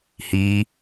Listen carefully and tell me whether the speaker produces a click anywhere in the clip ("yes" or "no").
no